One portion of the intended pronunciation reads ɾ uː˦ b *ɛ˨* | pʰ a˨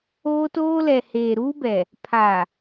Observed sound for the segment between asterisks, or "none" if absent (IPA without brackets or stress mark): ɛ˨